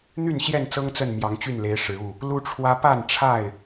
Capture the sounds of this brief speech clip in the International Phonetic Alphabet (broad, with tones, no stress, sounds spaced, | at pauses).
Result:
n̪ y˥˨ n ɕ j ɛ˥˨ n t͡s ɤ˦ ŋ t͡s ə˥˨ n m j ɑ˨˦ ŋ t͡ɕ y˥˨ n l e˨˦ ɪ̯ ʂ ɻ̩˨˦ u˥˨ | l u˦ ʈ͡ʂʰ w ä˦ p a˥˨ n ʈ͡ʂʰ a˥˨ ɪ̯